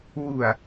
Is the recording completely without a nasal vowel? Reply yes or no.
yes